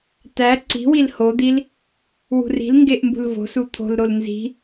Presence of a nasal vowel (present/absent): absent